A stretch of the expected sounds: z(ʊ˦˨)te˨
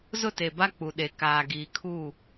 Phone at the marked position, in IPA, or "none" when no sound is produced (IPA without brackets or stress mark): ʊ˦˨